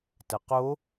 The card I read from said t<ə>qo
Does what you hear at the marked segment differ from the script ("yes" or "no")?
no